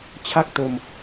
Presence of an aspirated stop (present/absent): present